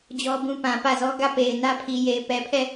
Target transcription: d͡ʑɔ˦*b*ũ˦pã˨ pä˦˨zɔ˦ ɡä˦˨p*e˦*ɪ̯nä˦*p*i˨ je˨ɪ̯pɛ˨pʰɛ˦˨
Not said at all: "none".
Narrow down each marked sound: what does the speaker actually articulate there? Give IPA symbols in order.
b, e˨, pʰ

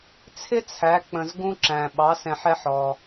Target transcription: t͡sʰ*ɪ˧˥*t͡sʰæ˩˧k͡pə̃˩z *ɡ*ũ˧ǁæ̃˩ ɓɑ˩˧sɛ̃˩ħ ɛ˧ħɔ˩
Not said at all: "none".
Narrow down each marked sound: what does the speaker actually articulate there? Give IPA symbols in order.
ɪ˥, ɡ

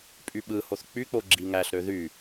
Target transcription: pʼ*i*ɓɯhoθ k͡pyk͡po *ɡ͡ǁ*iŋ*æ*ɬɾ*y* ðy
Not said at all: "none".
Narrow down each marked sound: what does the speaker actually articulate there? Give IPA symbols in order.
y, ɡ͡ǁ, æ, ø

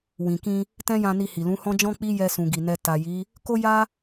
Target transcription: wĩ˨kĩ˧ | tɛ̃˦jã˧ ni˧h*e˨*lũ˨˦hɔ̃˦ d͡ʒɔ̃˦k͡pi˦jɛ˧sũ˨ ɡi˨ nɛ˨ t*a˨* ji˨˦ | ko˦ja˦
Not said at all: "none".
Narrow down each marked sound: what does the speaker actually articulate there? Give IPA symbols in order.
i˨, a˨

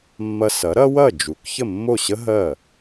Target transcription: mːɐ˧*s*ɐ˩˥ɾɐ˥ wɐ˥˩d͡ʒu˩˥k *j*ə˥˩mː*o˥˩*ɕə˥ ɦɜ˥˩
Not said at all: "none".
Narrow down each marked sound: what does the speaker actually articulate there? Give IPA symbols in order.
s, ç, o˥˩

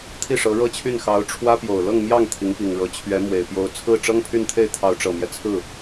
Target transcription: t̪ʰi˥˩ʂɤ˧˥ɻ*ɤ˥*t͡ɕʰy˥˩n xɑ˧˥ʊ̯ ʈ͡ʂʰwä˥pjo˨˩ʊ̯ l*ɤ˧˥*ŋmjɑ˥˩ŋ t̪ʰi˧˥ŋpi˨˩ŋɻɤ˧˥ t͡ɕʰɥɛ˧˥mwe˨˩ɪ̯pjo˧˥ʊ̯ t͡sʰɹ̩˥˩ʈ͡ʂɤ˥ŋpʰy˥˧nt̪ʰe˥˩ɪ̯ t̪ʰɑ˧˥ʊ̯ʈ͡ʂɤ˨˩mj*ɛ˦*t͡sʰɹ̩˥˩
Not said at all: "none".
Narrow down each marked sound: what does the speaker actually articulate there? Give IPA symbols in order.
ɤ˥, ɤ˥˧, ɛ˦

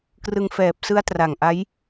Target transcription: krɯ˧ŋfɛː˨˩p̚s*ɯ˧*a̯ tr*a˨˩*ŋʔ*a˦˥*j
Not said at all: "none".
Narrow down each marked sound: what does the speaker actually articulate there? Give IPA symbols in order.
ɯ˦˥, a˨˩, a˦˥

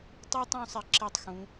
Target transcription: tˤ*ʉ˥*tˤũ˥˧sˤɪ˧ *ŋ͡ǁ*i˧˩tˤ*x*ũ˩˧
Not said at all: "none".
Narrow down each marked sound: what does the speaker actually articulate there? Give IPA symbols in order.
ʉ˥, ǁ, x

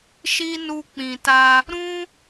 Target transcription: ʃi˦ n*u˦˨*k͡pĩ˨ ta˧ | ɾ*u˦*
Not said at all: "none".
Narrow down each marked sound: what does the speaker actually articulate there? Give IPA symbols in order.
u˧, ũ˦

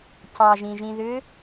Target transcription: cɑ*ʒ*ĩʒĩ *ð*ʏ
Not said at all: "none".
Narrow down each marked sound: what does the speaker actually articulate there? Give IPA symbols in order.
ʒ, ð

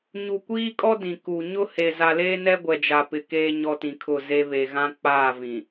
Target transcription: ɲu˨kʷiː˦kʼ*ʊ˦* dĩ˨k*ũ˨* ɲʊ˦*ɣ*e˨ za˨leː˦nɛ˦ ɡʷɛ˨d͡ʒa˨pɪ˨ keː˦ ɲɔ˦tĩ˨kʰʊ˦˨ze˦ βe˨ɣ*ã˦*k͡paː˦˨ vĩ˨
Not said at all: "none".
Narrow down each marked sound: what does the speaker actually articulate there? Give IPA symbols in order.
ɔ˦, u˨, h, ã˦

